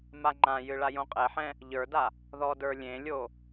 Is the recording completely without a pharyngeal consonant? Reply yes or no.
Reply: no